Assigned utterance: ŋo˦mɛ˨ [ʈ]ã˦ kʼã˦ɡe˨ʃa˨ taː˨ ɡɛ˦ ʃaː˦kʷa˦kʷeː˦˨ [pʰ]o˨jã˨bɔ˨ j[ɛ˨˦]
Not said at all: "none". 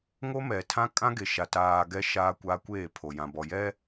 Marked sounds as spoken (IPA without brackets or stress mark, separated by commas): tʰ, pʰ, ɛ˦